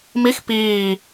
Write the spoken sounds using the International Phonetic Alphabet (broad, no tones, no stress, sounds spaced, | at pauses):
m i x p iː